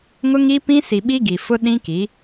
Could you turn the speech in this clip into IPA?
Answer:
ŋʊ˦ŋi˦pĩ˦ si˨ ɓi˦ɡi˨fʊ˦ ɗĩ˦ ki˨˦

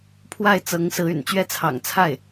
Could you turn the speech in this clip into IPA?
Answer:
pʰwa˥˩ɪ̯t͡sɤ˧˥ŋsɹ̩˧˥y̰˨˩n t͡ɕɥɛ˥˩t͡sʰɑ̰˨˩ŋt͡sʰa˥˩ɪ̯

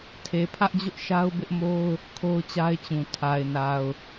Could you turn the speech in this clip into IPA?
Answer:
tʰe˨pʰä˦ʔd͡ʑʊ˦ʔ ʃa˦ʊ̯bɪ˦ʔmo˦ʊ̯ | kʰo˦ʊ̯t͡ɕa˦ɪ̯t͡ɕũ˨ tʰa˨ɪ̯na˨ʊ̯

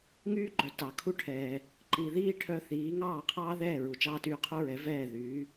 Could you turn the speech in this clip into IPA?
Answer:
ŋyː˥ɡ͡ǃœ˩ tɑ˩kʰu˥ʈʰɛː˩ | ǃi˩ðiː˥˩ʈʰœ˧ θiː˩˥ ŋɑː˥˩qʰɑː˥ ðɛː˥˩ɹu˩ t͡ʃɑː˥tyː˧qʰu˥ ɹɛ˩˥ vɛː˥˩ðyː˩˥

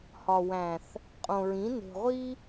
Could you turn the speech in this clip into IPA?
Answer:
hɒ˨wæ̃˨θ | qʼõ˨ɹĩ˨˦ ne̤˨ ʁʷi˦

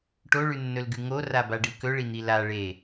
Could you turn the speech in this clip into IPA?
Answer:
ʈoɭʉnːɵlɡʉ ŋorabaɖi kɵɭin̪i la ɭe

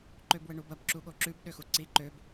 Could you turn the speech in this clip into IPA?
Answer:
ǃøbwəɳubɐb ǁuɠoǁʉb ɗøxuǀi ǃøb

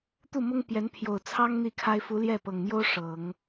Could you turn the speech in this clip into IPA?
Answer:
t̪u˥˩mʊ˥ŋpjɛ˧˥npʰjo˨˩ʊ̯ t͡sʰɑ˥ŋ n̪i˥˩kʰa˥ɪ̯ fu˧˥ljɛ˥˩pɤ˨˩ŋmjo˥ʊ̯ ʂɤ˨˩˦ŋ

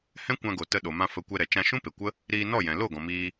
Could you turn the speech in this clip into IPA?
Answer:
hɛ̃˦kʷã˧ɡo˨ tə˧ɗo˨mã˧ fə˨ kʷɛ˧ɾɛ˨ t͡ʃã˧ʃũ˦pe˨kʷə˦ | ɾiː˧nɔ˦˨jɛ̃˨ lo˦˨ɡɔ̃˨miː˧

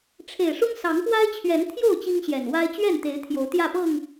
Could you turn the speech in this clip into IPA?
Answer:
ʈ͡ʂʰe˨˩ɪ̯ʂʊ˦ŋ sɑ˨˦ŋpwa˦ɪ̯t͡ɕʰɥɛ˨˦nt̪ʰjo˥˨ʊ̯ t͡ɕi˦ŋɕjɛ˨˩n wa˦ɪ̯ t͡ɕɥɛ˥˨nt̪e˨˦ɪ̯ t̪ʰjo˨˦ʊ̯t̪jä˥˨pɤ˥˨ŋ

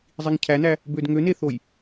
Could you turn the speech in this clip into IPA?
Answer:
zˤiŋcʰænæ | bødŋøneθoj

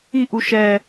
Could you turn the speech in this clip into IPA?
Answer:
iʔu ʃɛ

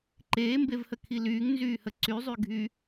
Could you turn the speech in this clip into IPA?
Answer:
ǃeːmbevhəkʰi lyːŋnzyːhə ǀyzˤyɡʱyː

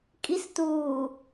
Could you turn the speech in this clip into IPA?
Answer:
kʼis tuː

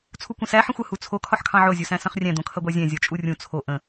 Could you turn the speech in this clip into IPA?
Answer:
t͡sʰukʷɐ̃sæ ħə̃xʷə hut͡sʰo kʰɒħkʰɑ̃ʕo zʲosæ̃sɐ̃χrʲæ̃ d̪õkʰɐɡʷɑzʲæ̃ zʲɔt͡ʃʼurʲũ t͡sʰo ʔə̃

